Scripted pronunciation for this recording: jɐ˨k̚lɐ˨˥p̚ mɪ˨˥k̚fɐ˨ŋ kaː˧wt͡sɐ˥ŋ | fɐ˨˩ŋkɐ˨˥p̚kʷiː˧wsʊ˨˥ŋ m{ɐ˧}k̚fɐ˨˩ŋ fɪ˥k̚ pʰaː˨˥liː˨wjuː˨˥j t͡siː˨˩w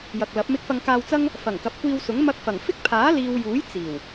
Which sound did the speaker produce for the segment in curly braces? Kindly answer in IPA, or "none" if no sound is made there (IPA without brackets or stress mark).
ɐ˧